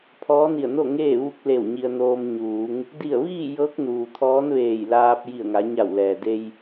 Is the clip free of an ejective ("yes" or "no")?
yes